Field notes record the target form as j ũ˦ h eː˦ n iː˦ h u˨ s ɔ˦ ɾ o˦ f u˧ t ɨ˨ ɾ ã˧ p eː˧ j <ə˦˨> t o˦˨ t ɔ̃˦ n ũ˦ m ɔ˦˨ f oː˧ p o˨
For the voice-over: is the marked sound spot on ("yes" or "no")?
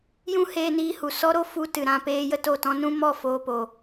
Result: no